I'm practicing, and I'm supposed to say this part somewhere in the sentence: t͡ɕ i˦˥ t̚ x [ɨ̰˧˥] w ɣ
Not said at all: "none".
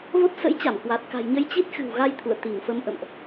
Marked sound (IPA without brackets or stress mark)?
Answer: ɨ̤˨˩